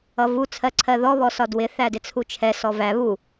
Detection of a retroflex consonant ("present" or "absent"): absent